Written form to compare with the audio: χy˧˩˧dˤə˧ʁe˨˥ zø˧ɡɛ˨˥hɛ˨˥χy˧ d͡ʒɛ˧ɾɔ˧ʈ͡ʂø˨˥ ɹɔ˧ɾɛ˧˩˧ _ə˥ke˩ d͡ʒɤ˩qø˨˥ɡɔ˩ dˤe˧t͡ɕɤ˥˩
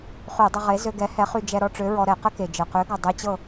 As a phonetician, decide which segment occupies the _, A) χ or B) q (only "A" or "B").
B